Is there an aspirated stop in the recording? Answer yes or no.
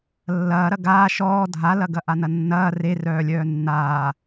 no